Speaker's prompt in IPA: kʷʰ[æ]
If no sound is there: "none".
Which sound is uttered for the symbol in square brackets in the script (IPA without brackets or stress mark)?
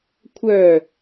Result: œ